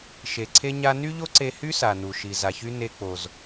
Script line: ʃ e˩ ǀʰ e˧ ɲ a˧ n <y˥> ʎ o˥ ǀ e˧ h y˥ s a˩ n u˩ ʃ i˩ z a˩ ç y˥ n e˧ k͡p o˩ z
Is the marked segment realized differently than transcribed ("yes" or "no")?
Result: no